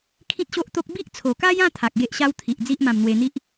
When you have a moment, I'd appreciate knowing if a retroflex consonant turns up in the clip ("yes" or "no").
no